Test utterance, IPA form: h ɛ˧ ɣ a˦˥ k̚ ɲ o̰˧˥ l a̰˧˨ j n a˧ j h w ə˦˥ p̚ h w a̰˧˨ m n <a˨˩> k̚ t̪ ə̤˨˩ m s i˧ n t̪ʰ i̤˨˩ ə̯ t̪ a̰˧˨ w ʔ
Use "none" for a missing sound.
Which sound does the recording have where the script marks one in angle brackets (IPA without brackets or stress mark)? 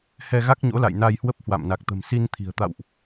a˨˩